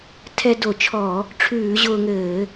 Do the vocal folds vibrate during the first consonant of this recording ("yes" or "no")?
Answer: no